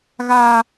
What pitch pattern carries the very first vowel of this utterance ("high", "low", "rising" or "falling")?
high